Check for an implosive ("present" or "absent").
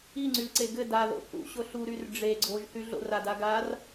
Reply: absent